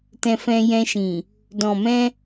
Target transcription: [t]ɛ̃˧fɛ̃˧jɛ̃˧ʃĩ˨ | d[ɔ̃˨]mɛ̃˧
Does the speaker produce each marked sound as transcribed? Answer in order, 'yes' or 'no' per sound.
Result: yes, yes

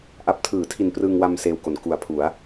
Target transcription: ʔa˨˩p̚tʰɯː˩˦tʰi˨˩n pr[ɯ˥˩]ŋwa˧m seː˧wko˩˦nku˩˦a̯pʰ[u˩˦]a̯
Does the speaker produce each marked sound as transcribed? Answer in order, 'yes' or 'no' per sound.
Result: no, yes

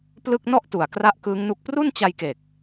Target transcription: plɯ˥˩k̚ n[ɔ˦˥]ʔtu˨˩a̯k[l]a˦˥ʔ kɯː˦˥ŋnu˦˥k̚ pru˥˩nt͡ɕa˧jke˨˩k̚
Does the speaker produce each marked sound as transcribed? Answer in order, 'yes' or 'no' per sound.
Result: no, no

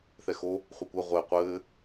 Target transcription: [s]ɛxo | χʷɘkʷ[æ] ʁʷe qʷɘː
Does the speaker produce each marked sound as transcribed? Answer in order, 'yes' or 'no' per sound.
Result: no, no

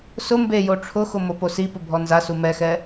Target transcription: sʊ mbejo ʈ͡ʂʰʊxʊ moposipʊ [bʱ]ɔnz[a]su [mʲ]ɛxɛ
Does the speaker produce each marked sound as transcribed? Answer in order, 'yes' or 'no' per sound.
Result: yes, yes, no

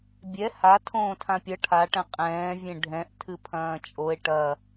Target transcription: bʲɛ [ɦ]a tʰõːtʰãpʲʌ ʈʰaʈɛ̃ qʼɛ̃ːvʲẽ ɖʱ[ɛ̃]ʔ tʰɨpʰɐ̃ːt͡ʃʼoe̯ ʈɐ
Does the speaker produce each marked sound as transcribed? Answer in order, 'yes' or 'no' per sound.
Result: no, yes

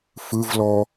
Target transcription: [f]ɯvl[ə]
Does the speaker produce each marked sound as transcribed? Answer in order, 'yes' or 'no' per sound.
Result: yes, no

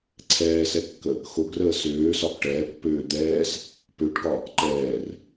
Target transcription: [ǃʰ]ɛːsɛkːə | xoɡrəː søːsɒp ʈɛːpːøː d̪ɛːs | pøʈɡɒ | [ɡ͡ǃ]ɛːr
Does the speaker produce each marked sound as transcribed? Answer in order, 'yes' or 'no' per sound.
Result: no, no

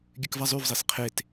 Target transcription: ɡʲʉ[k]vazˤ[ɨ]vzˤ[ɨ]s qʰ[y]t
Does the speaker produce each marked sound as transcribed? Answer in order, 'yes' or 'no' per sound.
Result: yes, no, no, no

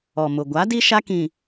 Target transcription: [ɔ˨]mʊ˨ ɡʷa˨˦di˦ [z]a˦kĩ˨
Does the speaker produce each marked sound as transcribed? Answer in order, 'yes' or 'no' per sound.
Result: yes, no

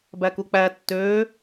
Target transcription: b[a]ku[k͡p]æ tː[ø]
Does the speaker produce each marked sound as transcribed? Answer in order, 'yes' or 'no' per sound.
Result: no, yes, yes

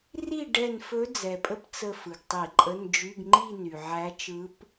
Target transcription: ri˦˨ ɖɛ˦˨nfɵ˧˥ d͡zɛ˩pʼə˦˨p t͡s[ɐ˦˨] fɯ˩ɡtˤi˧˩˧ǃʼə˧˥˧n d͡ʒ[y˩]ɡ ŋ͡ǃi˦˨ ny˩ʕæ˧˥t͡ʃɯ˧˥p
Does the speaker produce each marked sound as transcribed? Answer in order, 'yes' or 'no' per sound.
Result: no, no

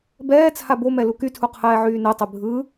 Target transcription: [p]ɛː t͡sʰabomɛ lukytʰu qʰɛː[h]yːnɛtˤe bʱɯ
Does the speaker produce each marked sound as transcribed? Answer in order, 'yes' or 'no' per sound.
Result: no, no

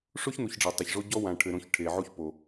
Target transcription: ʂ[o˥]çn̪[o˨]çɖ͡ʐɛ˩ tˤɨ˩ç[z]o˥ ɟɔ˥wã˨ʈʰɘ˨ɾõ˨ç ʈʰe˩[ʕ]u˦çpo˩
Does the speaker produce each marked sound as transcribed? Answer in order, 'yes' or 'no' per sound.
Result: yes, no, no, yes

